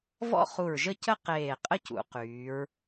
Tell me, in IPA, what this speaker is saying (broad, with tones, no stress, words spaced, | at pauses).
vɔ̰˥˧χu˧˩ɹʒə˥˧ cə˥ qeː˧˩qʼə˥ cṵ˩˧qyː˩˧ɹ